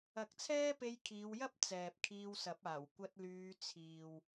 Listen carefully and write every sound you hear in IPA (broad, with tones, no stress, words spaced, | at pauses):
ɐ˨˥k̚t͡sʰɛː˥pe˧j kʰiː˨˧wjɐ˥p̚ t͡sɛː˨p̚kʰiː˧wsɐ˨˥p̚aː˨˩w kʷɐ˧t̚lyː˨˧ t͡sʰiː˨w